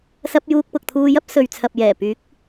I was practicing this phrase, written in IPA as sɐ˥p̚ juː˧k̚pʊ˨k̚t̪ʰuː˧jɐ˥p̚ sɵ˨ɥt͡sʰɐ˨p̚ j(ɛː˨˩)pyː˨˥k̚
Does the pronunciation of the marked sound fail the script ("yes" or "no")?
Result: no